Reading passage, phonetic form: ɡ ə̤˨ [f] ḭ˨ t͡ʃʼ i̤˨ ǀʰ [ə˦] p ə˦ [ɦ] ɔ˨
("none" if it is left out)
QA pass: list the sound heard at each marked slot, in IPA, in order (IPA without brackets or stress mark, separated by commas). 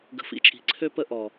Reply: f, ø˦, ʔ